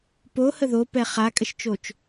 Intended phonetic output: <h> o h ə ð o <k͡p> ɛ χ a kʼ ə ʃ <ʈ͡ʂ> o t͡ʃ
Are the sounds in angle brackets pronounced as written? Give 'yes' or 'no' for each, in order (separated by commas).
no, no, no